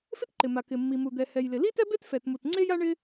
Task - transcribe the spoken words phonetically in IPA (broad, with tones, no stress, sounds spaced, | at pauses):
f ɪ˥ t ǃ ɪ˩ m a˩ k ɪ˩ mː i˩ m u˩ d̪ ɛ˩ h ɛ˩ j l ɪ˩ l i˥ t ɛ˥ b e˥ t f ɛ˩ t m u˩ t ŋ͡ǀ e˥ j a˥ ɳ ɪ˥